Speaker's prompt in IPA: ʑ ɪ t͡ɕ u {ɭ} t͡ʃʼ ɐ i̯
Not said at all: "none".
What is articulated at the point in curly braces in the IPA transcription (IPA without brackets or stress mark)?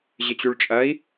ɭ